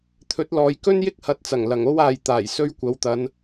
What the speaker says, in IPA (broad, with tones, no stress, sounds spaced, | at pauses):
t̪ʰ ɵ˨˥ t̚ l ɔː˨ j k ɵ˥ n j ɪ˥ k̚ h ɐ˨˥ t̚ t͡s ɐ˨˩ ŋ l ɐ˨˩ ŋ o˥ w aː˨ j t̪ aː˨˩ j s ɵ˧ ɥ kʷ ɐ˨ w t̪ ɐ˨˧ n